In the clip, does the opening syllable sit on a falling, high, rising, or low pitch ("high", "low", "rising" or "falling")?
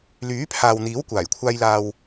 rising